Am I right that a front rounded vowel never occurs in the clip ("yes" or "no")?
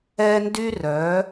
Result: no